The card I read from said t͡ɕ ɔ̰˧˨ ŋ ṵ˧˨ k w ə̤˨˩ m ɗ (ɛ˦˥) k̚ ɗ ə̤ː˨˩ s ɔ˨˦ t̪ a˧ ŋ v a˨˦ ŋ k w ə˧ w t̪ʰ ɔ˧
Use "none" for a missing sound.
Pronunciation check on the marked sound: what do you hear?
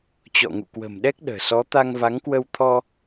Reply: ɛ˦˥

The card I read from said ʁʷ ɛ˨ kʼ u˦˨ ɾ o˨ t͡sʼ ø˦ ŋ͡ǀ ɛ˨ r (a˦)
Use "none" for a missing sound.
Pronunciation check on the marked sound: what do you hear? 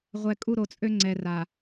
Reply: a˨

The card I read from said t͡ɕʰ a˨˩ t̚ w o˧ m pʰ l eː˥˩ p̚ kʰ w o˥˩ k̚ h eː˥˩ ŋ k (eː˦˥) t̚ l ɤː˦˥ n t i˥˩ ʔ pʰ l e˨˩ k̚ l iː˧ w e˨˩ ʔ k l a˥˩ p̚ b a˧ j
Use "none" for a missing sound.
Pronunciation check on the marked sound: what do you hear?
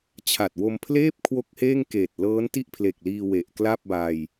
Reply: eː˨˩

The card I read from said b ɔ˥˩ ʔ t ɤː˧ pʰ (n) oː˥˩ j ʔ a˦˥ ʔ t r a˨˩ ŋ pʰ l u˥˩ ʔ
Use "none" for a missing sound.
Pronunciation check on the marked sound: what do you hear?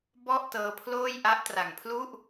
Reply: l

